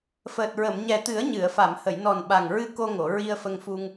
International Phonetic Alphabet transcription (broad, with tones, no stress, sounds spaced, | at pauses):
f əː˨˩ t̚ ɹ ə˨˩˨ m ɲ ɛ˨˩ t̪ ɨ˨˩˦ ə̯ ɲ ɨ˨˩˨ ə̯ f a˨˩˨ m h ə˨˩˨ j n ɔ˨˩ n ɓ a˨˩ ŋ ɹ ɨ˧ k o˧ ŋ o˨˩˨ ɹ i˧ ə̯ f ə˧ ŋ f u˧ ŋ